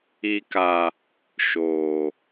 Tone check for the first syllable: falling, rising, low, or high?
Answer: high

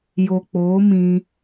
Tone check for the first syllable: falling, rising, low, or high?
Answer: low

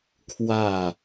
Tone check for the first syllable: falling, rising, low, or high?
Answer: falling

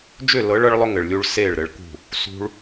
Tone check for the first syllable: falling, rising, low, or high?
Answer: falling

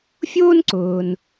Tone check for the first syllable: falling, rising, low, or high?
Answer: high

